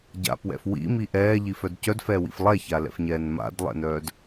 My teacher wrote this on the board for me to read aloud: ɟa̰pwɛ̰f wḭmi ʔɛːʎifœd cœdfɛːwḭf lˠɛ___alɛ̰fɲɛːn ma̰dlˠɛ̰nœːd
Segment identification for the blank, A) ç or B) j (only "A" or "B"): A